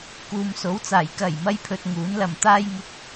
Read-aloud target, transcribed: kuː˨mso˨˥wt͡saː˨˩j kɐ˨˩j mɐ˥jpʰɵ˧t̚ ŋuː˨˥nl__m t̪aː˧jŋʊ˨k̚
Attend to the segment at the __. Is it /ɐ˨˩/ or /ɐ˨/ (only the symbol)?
ɐ˨